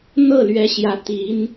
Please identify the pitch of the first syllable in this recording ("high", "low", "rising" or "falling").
falling